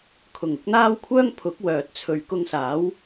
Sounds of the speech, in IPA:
kʰ ʊ˨˩ ŋ ʊ˨˥ k̚ n̪ aː˥ w kʷʰ œː˥ ŋ pʰ ʊ˨˥ k̚ w œː˨ t̚ t͡sʰ ɵ˨ ɥ k ʊ˧ ŋ s aː˨˥ w

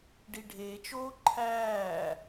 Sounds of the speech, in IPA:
ɖ i ɖʱ eː t͡ʃ oː ǃʰ æː

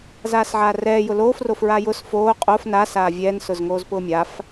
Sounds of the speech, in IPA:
z aː s ʕ aː r ɛː j ʊ l oː f r o f ɹ a j ʊ s f oː qʼ o f n a s aː vʲ ɛː n s ʊ z ŋ oː z p ʊː mʲ a f

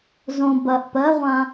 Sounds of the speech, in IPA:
z õ b ɐ ʔ p ɜ ʁʷ ã

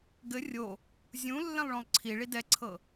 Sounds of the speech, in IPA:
ɡ ɘ rʲ o | zʲ ũ lː ɛ̃ lˠ ɭ õ lˠ ǀʰ i ɭ i d ɛ ǀʰ ɤ

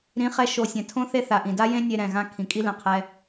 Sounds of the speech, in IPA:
ɾ ĩ˨˦ χ ɛ˧ ʃ o˨ sʲ ɛ̃˨ tʰ õ˦ θ e˧ θ a˨ ʔ ĩ˨ d a˦ j ẽ˦ nʲ e˧ ɾ ɛ̃˨ ɣ ã˧ kʰ ĩ˨ kʼ i˦ l ɛ̃˨˦ qʰ ɛ˧

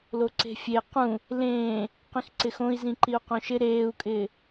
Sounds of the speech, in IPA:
l o ǀ e̤ fʲ e q ũ | l ẽː | q ĩ x ǀ ɪ x õ i̯ z ĩ ǃ i u̯ q õ ʃ ɪ ɾ eː u̯ kʼ ɪː

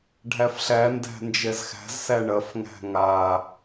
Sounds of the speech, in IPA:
ɖʱ æ f ɬ æ n d æ̤ n d͡ʒ ɛ z x æ̤ z s æ ɳ ɐ f ŋ æ̤ ŋ a

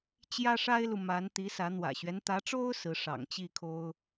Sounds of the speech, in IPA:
t͡ɕ j ä˥ ʂ a˥ ɪ̯ l u˨ m a˧˥ n t̪ i˧˥ s ä˧˥ n̪ w ä̰˨˩ ɕ ɥ ɛ˦ n t̪ ä˧˥ ʈ͡ʂ o˥ ʊ̯ s ɹ̩˧˥ ʂ ɑ̰˨˩ ŋ t͡ɕ i˥˩ kʰ o˥ ʊ̯

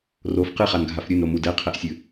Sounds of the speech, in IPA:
r o f q ɨ χ a n ɡʱ a f ɾʲ ɨ n ɾ o m u d ɛ qʰ ɛ ʔ sʲ ɨ

